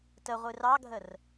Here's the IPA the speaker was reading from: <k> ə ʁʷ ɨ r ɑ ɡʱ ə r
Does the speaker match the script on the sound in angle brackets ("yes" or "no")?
no